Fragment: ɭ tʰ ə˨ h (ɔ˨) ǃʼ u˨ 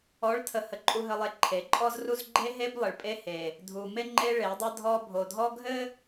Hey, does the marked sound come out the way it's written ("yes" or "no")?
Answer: no